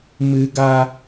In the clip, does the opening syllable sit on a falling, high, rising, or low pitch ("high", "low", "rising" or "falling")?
high